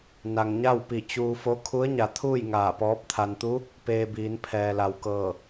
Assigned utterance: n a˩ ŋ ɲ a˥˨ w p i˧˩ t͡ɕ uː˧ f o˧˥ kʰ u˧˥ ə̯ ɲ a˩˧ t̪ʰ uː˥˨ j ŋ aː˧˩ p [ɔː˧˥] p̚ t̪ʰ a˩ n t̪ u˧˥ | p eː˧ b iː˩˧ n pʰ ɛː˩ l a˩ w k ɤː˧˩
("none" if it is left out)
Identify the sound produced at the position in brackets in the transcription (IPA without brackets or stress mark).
ɔː˧˥